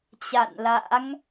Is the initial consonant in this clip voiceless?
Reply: yes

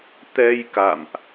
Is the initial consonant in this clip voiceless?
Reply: yes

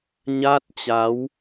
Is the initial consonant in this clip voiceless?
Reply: no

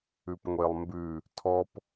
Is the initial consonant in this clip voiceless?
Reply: yes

